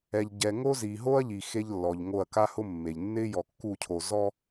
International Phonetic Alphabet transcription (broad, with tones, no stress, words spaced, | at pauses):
ɛ˨ʎɟɛ˨ŋo˦zi˨ ɦo˦ɐ̯ʎi˨ xe˦ʎlːɔ˨ʎŋo˦˨ɐ̯ ka˦hʊ˦mːe˨ʎ nːɪ˦ jɔ˨kːu˦˨cʰo˨ zɔ˦